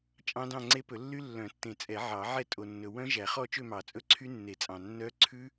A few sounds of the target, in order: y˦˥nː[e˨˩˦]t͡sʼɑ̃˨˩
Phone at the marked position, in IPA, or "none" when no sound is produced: e˨˩˦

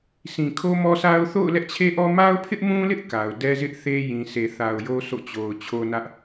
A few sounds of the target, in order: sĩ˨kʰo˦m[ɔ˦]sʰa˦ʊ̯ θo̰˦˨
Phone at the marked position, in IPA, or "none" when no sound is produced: ɔ˦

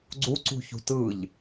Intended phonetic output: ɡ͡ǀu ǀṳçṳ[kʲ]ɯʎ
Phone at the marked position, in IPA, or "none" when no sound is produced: t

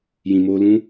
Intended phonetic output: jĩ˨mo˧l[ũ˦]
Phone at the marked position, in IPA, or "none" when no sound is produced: ũ˦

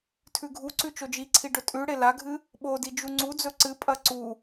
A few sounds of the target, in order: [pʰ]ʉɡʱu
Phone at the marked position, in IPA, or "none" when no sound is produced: tʰ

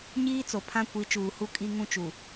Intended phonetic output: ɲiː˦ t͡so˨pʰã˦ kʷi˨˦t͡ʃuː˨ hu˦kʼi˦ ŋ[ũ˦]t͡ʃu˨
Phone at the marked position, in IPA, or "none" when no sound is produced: ũ˦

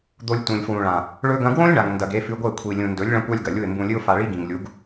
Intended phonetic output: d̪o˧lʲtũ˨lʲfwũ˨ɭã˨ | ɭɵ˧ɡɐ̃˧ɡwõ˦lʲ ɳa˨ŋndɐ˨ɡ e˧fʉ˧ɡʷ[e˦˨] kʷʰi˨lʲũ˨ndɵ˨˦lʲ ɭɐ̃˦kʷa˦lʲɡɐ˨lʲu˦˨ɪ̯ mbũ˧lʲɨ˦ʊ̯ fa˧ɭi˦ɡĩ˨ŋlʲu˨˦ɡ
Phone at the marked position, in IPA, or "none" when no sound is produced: e˦˨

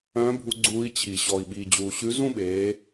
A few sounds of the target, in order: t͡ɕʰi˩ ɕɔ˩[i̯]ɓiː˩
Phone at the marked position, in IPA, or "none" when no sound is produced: i̯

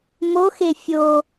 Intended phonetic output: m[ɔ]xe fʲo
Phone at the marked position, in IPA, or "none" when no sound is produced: o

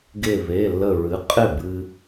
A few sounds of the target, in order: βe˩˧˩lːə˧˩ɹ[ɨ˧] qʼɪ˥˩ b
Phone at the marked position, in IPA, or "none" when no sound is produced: ɨ˩˥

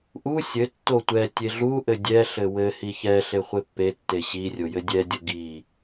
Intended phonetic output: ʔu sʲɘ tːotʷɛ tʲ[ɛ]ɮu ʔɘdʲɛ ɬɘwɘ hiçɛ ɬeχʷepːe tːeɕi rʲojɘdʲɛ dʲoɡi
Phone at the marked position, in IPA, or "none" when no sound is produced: e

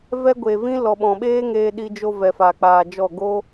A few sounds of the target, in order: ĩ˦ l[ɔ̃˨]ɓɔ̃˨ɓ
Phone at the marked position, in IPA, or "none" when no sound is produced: ɔ˨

